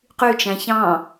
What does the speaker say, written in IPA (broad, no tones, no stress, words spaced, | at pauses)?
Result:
qyt͡ʃæ̃ çɑ̃